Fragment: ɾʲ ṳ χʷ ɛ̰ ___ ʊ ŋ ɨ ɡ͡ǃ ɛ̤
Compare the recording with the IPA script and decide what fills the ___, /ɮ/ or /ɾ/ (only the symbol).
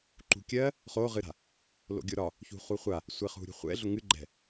ɮ